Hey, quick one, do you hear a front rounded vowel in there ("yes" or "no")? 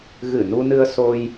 no